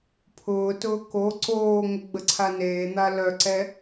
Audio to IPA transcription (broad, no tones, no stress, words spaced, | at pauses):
pʰʊːtʊː ko ǀoːŋə ɡ͡bəǀʰaneːn̪a lœǀɛ